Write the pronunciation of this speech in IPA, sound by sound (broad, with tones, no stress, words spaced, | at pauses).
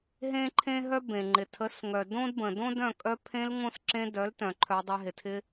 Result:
ɦẽ˦ǃʰẽ˦ɦœ˦ bẽ˨ŋ͡ǃɪ˨ tʰə˨˦sŋœ˨ dõ˦d bə̃˨dõ˦dœ̃˦˨ kʼœ˧pʰẽ˧lŋõ˧s ǁẽ˧dœ˨˦ltœ̃˨ ǃʰœ˧dˤe˧ ɦɪ˨tʰɪ˦